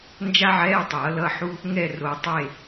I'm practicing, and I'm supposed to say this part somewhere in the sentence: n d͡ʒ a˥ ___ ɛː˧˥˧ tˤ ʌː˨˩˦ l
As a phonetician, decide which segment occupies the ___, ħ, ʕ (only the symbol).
ʕ